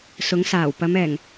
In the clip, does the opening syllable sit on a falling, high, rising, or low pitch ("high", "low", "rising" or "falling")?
rising